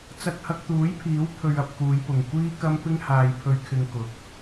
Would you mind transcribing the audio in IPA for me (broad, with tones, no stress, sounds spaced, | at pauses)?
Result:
t͡s ɐ˧ k̚ h ɐ˧ k̚ t̪ uː˨˥ j pʰ iː˨˥ w pʰ ɵ˧ ɥ ɐ˧ p̚ k uː˨˧ j p ʊ˨ ŋ kʷ iː˥ k ɐ˥ m p ɪ˥ ŋ h aː˧ j pʰ ɵ˧ ɥ kʰ ɪ˧ ŋ k ʊ˨ k̚